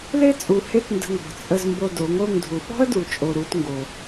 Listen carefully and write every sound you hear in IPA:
l e˦ t͡sʼ u˨ h e˦ t n d ə̤˧ ŋ ɔ̤˨ t͡sʼ ə˧ z m b o˧ d o˨˦ ŋ o˦˨ ŋ dʱ u˨ ɓ ɔ̤˦ ə̯ d u˨ t͡ʃʼ o˧ ɾ u˦ t ŋ ɡ o˧

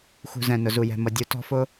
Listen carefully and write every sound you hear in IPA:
x ṳ˨ z ɛ̃˨ n ʊ˨ z u˨ j ɛ̤˨ m ʌ˨ dʲ u˨ t ɔ̤˧ f ʊ˧

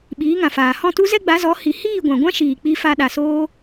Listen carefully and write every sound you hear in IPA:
ɓ iː˨˦ ŋ ã˨ f aː˨ h ɔ̃˦˨ t u˦ z ɛ˦ ɡ͡b a˨˦ z ɔ˨˦ h i˨ h iː˦˨ ɡʷ ã˨ ɡʷ ã˦ ʃ iː˨ k͡p i˧ f a˧ ɗ a˨ s oː˦

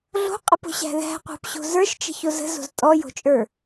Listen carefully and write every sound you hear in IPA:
ɮ o̤ qʼ ə p o̤ ɕ æ̤ ð æ̤ qʷ æ̤ p ɕ o̤ z ə˞ ʃ t͡ʃ ə̤ ç o z ə̤ z o̤ z tʼ ɔ j o̤ t͡ʃʼ ə˞

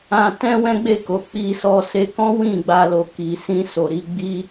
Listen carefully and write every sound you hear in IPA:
ã˧ t ɛ̃˦ w ɛ̃˦ ɡ͡b e˦˨ k o˨ k͡p i˧ s ɔ˧ s e˧ k ɔ̃˦ w ĩ˦˨ ɡ͡b a˧ l o˨ k i˨ s ĩ˧ s o˨ ɾ i˧ ɡ͡b i˦

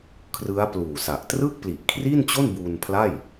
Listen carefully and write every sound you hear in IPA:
kʰ r ɯ˦˥ a̯ p l uː˨˩ s a˨˩ ʔ t r ɯ˥˩ k̚ p l i˨˩ ʔ kʰ r i˥˩ n t͡ɕ o˥˩ n b uː˧ n pʰ l a˥˩ j

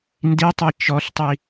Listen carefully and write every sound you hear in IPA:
n d i tˤ i t͡ʃ ɔ ɬ tˤ i

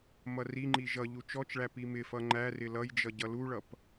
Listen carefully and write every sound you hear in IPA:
m ʌ r i ŋ͡ǃ i ʒ ʌ ʎ u t͡ʃ ɔ t͡ʃ ɭ æ p i m ɪ f ʌ ŋ͡ǃ æ r ɪ l ʌ j d͡ʒ ʌ ɟ ʌ l u ɭ ʌ p

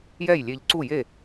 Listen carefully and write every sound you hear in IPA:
j ɛ˥˩ j lʲ e˧ ʎ ǀ u˥˩ j e˥˩

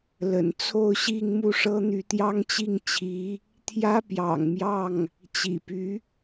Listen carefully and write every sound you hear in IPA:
l ə̰˨˩ n t͡sʰ o˥˧ ʊ̯ ɕ i˥˧ ŋ m u˥˩ ʂ ɤ˥ n̪ y˧˥ t̪ j ɑ˥ ŋ t͡ɕ i˥˩ ŋ t͡ɕʰ i˧˥ | t̪ʰ j ä˥ p j ɑ̰˨˩ ŋ m j ɑ˥˩ ŋ | t͡ɕ ḭ˨˩ p y˧˥

